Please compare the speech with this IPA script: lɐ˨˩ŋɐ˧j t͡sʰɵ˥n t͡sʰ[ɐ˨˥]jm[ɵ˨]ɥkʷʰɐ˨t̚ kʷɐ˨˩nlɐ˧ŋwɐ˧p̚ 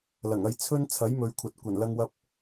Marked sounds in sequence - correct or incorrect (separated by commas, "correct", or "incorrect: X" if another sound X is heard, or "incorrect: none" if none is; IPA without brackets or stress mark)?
correct, incorrect: ɵ˨˧